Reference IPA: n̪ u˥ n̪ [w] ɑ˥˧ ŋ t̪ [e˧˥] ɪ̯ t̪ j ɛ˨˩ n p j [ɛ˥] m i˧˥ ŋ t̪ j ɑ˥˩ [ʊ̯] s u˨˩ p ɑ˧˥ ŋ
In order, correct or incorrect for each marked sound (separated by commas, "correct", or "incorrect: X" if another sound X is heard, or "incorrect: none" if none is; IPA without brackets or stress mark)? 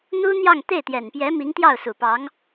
incorrect: j, incorrect: e˥˩, incorrect: ɛ˧˥, correct